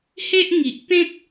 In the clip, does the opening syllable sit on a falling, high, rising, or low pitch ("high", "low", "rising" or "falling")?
high